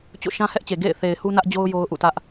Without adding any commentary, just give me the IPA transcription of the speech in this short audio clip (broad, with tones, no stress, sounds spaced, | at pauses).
t͡ɕ o̰˦˨ ʃ ã˦ h ɛ˦ ʔ t͡ɕ e˨ ɡ ḛ˦˨ ɪ̯ θ e˨ ɪ̯ h u˦ n ä˦ ʔ d͡ʑ o˦ ʊ̯ j o˦ ʊ̯ ʔ ṵ˦˨ t ä˦ ʔ